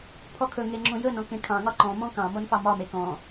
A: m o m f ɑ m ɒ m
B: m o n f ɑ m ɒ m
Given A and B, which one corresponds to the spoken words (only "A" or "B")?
B